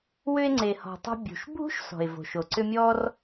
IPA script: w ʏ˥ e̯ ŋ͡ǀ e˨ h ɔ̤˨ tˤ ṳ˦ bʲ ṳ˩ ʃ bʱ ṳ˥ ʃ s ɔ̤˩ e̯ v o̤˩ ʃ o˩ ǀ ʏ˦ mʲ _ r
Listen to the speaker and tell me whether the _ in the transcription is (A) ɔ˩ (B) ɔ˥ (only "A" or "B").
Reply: B